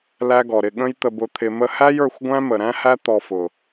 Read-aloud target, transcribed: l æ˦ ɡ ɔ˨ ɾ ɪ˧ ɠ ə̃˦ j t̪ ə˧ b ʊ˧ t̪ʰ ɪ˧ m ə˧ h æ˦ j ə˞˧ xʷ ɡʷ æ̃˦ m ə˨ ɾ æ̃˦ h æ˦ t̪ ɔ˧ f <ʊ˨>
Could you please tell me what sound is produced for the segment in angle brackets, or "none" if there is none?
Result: ʊ˨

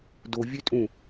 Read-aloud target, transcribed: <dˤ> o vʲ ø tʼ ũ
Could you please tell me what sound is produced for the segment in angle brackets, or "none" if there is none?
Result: d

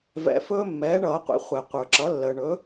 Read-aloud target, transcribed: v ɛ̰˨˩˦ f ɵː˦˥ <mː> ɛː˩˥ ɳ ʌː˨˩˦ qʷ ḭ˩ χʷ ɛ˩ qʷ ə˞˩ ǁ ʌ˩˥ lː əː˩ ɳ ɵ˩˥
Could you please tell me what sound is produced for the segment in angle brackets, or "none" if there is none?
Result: mː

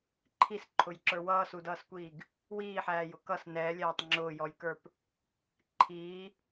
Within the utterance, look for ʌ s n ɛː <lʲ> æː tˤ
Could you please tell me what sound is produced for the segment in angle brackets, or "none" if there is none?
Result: lʲ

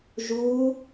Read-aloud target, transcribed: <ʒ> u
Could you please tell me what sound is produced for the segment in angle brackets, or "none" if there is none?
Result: ʒ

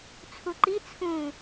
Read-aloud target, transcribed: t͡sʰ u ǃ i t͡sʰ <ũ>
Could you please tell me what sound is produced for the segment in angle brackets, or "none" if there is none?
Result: ũ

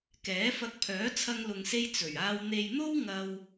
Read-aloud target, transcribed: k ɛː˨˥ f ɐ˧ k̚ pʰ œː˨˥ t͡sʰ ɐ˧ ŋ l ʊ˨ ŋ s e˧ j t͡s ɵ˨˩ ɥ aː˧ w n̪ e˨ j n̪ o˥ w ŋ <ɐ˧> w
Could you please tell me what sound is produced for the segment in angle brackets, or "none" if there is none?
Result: ɐ˧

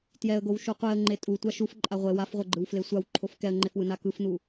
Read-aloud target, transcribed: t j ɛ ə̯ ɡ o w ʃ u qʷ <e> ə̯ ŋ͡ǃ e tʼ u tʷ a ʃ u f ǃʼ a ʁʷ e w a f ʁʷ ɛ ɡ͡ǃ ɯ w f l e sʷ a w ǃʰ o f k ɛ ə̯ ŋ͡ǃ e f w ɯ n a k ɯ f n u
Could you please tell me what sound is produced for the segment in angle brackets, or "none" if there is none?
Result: e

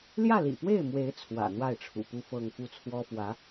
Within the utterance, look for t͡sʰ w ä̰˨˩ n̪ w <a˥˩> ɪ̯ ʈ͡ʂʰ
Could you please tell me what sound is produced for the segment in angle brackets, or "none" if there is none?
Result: a˥˩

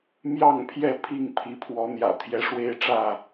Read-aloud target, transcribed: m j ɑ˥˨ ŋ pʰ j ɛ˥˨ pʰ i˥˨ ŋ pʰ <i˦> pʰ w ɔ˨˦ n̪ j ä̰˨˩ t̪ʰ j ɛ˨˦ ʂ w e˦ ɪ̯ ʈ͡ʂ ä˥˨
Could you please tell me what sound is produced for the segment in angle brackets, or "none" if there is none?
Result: i˨˦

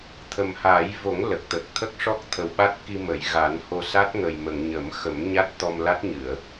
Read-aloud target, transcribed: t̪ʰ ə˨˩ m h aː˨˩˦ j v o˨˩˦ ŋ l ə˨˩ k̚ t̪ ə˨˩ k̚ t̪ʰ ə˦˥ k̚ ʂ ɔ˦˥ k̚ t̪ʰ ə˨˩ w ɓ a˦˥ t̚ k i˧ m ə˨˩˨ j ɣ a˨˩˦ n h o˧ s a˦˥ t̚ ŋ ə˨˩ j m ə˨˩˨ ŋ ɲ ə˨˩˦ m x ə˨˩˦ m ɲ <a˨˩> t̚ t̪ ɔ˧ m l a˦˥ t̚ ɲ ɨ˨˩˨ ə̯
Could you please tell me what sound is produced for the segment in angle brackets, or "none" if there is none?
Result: a˦˥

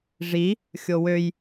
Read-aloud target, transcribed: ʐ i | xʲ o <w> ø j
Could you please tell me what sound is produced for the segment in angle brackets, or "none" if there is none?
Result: w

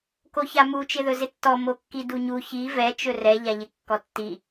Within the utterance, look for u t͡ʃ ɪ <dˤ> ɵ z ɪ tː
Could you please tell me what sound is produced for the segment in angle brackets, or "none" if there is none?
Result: ð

